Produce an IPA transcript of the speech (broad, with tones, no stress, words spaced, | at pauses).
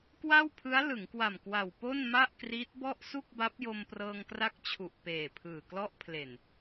kwa˥˩wpʰɯ˦˥a̯ lɯ˩˦ŋkwa˨˩m kwa˨˩w po˥˩nma˥˩ʔkriː˦˥t̚ bɔ˥˩ʔ su˥˩k̚ba˦˥p̚ jo˧mprɤː˧ŋkra˦˥k̚t͡ɕʰu˨˩ʔ peː˨˩pʰɯː˨˩klɔ˦˥ʔpʰle˨˩n